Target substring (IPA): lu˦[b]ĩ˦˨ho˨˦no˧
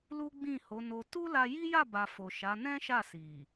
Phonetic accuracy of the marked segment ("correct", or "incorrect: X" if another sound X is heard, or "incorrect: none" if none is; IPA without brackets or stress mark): incorrect: ɡ͡b